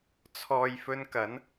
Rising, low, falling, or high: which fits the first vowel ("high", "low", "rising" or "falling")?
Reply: low